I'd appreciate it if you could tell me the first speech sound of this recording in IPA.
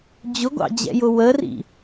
d͡ʑ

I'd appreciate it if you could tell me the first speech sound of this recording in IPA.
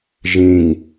ʒ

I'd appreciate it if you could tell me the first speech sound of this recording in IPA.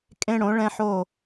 kʼ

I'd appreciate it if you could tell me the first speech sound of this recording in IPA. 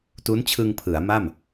t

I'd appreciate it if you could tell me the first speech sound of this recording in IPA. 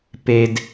p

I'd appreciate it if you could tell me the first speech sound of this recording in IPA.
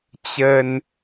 t͡ɕ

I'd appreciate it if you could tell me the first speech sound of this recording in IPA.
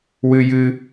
w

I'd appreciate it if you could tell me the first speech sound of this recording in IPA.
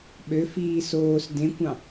ɓ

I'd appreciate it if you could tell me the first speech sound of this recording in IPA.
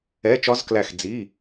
ɛ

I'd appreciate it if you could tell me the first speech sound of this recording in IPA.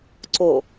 ǀ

